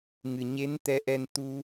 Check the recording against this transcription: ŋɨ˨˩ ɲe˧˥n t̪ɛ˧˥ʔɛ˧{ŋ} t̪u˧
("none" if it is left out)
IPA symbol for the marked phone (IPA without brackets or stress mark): n